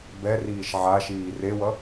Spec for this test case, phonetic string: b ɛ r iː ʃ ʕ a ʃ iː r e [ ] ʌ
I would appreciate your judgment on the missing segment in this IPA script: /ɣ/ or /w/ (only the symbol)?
w